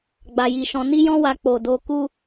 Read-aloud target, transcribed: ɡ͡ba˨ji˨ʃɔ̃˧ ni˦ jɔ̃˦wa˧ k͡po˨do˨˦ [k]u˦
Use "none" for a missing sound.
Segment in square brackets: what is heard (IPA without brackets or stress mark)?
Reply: k